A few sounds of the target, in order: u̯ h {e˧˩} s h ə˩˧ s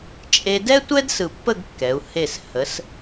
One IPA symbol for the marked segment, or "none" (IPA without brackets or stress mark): e˧˩